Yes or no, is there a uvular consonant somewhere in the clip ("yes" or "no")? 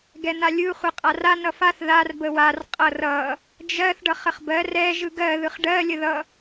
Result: yes